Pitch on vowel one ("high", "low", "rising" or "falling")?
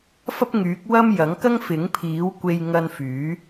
high